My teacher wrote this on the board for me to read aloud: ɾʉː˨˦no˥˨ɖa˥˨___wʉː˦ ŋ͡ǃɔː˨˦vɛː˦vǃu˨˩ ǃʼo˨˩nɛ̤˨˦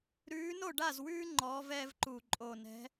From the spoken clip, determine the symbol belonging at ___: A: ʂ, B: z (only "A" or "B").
B